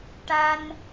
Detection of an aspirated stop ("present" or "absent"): absent